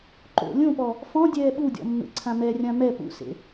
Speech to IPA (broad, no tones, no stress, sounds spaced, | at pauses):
ǃ o̰ lʲ õ p ɔ | f ɔ̃ dʲ ɛː ɓ u dʲ ɔ̰ mː ḛ ǀʰ ã m ɛ rʲ ã m ɛ p ṵ s ḛ